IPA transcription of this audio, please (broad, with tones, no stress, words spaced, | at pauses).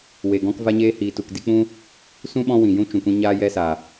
we˨ ɡɔ̃˧kva˧ɲeː˧ hiː˨tu˨k di˧k͡pũ˦ | sũ˦ ɓɔ̃˦ wĩ˨jũ˦t͡ʃũ˨kʷĩ˧ ɲaː˦jɛ˦sa˨